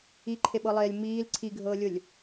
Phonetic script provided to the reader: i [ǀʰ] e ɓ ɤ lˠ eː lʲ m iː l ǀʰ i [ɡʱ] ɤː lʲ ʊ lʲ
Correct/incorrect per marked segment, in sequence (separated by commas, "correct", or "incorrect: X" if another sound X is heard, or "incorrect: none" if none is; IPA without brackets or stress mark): incorrect: ǃʰ, correct